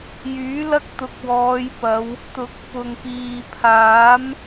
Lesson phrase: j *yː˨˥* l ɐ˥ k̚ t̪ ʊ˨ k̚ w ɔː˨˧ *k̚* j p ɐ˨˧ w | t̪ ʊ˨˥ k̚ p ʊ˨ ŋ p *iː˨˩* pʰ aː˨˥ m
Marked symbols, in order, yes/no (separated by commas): yes, no, no